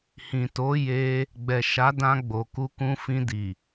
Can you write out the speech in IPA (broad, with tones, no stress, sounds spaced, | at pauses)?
h ĩ˨ t o˨˦ j e˧ | ɡ͡b ɛ˨ ʃ a˨˦ d ã˧ ɡ͡b o˨ k u˧ k ũ˧ f ĩ˧ d i˨